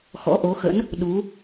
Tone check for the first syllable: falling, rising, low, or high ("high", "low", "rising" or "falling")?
rising